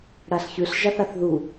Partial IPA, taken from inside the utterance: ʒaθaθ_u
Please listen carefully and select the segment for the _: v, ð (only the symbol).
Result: ð